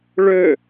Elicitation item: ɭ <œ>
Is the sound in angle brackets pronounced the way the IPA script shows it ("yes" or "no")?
no